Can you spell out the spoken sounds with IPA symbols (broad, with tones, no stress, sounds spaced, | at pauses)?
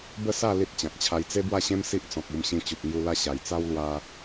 b ə˥˧ s a˥˧ l i˦ t̚ t͡ɕ ã˨ k̚ t͡ɕʰ a˧ j t͡s e˦ b w a˥˧ ɕ ẽ˦ m s i˦ ʔ t͡s ɔ̃˨ k̚ u˧ m ɕ ĩ˧ t͡ɕ u˨ p̚ ŋ j u˧ l a˥˧ ɕ a˨˩ j t͡s a˦ w l w a˧